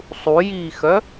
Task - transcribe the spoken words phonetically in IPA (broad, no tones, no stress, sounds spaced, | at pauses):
sˤ u j iː x œ